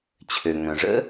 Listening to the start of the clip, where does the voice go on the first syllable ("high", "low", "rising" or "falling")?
low